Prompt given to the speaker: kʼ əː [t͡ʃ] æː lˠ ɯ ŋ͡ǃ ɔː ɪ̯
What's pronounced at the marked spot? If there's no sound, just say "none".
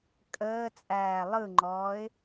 t͡sʼ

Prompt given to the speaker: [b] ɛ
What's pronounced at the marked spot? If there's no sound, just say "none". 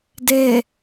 d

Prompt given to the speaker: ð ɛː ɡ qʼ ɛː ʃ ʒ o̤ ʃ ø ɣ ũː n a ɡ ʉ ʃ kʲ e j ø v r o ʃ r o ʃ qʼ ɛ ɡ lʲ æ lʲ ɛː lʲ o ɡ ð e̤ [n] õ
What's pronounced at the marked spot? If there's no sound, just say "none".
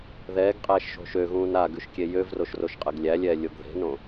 n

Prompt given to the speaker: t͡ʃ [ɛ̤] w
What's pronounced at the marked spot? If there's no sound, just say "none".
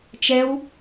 ɛ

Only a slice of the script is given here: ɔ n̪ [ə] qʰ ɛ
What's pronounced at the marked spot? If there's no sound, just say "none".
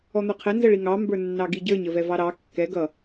ə˞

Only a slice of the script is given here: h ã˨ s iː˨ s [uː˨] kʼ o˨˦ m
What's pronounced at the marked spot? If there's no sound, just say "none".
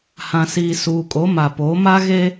uː˨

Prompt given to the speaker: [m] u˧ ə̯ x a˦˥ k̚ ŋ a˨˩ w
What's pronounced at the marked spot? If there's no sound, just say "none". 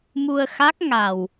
m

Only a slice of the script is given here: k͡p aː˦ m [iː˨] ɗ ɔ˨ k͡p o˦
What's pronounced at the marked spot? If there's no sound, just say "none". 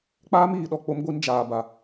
iː˨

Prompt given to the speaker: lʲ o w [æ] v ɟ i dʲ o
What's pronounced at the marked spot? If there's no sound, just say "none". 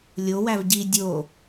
æ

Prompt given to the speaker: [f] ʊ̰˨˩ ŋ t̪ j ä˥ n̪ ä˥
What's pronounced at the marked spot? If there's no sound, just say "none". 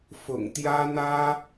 f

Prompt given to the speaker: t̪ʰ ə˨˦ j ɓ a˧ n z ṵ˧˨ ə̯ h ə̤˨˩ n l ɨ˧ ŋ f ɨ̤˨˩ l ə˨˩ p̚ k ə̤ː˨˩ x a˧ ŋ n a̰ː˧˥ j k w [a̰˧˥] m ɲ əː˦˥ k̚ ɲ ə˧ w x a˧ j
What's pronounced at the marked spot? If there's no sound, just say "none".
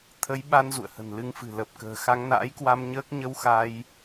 a˧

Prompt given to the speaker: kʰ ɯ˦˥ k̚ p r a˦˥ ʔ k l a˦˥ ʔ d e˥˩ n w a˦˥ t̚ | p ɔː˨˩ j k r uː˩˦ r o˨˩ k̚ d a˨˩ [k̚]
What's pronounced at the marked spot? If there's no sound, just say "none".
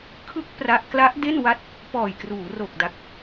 k̚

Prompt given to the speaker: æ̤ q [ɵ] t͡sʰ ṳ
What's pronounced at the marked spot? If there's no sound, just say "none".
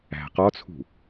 ɔ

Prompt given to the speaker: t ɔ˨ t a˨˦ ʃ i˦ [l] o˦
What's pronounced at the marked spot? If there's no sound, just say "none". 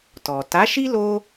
l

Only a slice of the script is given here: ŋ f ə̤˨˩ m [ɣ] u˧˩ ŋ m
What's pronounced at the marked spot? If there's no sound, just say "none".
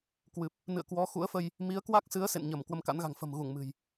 ɣ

